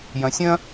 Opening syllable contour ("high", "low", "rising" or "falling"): low